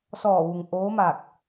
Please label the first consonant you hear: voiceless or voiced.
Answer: voiceless